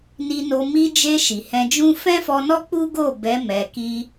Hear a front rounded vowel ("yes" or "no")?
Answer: no